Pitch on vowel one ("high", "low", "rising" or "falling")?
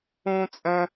high